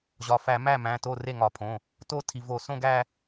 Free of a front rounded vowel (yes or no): yes